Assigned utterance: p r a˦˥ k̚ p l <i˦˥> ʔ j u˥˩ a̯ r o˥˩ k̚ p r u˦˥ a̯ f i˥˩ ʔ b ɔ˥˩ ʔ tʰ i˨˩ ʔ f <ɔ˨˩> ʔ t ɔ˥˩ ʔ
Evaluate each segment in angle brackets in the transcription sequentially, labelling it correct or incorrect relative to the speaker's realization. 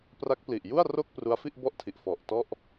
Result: incorrect, correct

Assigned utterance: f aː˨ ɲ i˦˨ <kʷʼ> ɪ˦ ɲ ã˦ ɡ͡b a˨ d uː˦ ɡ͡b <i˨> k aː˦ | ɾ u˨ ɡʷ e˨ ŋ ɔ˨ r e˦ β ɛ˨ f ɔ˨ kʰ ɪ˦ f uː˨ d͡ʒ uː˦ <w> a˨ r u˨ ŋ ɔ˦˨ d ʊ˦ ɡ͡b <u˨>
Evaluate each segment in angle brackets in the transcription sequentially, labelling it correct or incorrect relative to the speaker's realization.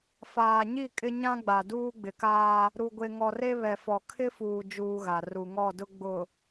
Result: incorrect, incorrect, incorrect, incorrect

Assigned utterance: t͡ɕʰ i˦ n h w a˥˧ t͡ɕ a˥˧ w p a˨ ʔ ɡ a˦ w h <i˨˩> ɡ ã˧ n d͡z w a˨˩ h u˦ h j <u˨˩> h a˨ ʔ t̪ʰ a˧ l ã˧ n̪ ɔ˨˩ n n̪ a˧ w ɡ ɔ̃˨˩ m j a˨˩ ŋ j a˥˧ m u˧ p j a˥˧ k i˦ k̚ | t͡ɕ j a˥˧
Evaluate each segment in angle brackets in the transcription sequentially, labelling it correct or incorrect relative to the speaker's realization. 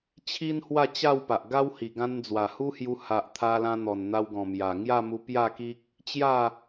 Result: correct, incorrect

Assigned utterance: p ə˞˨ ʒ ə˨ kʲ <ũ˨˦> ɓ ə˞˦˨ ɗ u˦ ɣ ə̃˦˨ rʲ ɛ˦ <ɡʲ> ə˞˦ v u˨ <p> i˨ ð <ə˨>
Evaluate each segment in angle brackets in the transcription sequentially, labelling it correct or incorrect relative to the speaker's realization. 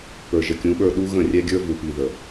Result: correct, correct, correct, correct

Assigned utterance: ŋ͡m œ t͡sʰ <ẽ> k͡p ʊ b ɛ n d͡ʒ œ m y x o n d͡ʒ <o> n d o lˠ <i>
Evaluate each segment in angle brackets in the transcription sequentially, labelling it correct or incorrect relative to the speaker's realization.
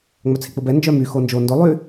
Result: incorrect, correct, incorrect

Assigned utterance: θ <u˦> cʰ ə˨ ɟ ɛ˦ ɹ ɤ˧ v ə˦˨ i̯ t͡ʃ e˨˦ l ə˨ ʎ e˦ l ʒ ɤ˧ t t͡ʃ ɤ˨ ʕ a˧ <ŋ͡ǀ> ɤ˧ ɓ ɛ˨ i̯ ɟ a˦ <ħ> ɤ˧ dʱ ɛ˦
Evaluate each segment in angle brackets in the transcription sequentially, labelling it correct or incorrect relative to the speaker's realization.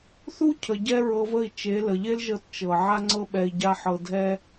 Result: correct, correct, correct

